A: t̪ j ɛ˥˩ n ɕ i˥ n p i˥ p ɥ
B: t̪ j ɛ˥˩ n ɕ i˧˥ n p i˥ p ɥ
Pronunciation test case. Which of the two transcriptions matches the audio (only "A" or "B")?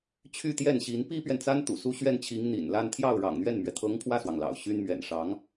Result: B